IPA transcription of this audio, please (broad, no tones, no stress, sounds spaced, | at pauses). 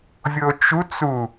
vʲ o t͡ʃ u t͡s u